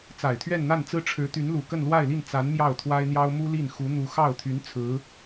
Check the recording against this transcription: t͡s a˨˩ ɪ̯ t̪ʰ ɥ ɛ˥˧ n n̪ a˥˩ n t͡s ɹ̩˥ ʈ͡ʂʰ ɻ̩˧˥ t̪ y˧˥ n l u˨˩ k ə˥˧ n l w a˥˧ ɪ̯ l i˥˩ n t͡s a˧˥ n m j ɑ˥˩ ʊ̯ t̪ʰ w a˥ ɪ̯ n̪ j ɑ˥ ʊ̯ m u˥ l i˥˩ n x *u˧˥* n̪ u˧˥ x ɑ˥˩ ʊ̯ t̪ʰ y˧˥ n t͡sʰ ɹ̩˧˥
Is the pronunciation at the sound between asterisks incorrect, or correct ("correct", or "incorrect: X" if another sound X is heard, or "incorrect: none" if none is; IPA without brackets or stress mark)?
correct